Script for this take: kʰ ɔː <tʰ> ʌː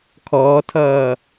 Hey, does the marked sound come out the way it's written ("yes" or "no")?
yes